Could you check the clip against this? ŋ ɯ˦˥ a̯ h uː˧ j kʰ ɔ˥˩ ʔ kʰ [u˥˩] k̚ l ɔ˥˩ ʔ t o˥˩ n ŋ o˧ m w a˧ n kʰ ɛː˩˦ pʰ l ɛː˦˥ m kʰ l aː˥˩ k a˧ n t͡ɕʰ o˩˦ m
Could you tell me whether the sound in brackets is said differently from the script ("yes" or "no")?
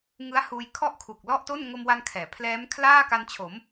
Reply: yes